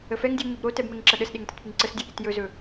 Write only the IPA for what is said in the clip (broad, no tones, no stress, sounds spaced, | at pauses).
ə f ɛ ŋ dʲ u ɲ o b ɾ o t ɛ b m ɛ ŋ ǁ ɐ ɗ ə s ɗ e ŋ t ɐ t p ɨ ŋ ǀ ə s dʲ u ɗ i t j ɵ z ɵ